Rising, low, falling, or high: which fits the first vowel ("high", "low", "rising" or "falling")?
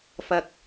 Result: low